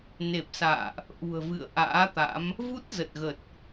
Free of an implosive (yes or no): yes